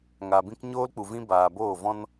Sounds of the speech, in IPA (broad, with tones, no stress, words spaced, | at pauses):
ŋaː˨bĩ˦k ɲoː˦lk͡pu˨vĩ˦ baː˨ boː˦˨vɔ̃˦n